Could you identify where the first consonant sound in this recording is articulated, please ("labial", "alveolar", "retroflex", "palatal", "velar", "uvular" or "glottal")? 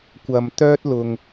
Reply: velar